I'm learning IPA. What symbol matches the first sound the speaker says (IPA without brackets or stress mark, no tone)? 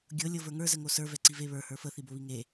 ɡʲ